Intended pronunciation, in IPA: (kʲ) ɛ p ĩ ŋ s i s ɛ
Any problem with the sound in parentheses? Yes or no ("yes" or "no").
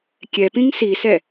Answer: no